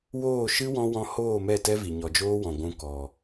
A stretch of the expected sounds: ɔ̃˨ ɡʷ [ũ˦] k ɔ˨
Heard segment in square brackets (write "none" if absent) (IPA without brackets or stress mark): ũ˧